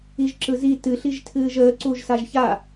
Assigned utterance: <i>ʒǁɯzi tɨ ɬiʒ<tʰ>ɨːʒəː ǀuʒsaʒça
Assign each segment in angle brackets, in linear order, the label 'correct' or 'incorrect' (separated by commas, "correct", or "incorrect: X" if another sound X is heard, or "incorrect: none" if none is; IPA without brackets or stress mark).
correct, correct